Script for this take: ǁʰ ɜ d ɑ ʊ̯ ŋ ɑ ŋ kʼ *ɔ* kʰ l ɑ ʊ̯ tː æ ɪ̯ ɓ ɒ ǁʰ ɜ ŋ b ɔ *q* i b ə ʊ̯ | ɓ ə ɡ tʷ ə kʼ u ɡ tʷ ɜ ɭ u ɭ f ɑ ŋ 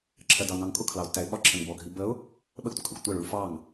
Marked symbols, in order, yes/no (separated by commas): no, no